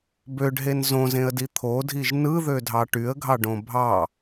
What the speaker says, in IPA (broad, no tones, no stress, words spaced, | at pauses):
bøɖɦen zõzẽə̯di t̪ʰodʱiʒ nɯðødʱɑ ʈyə̯ɡʱɑɖõ bʱɑ